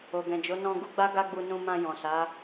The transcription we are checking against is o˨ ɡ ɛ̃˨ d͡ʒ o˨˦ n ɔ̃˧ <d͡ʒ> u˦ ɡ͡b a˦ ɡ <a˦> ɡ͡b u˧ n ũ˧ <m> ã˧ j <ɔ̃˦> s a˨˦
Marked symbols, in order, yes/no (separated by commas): no, yes, yes, no